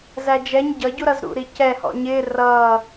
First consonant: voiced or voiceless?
voiced